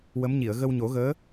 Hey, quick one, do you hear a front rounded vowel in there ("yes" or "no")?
no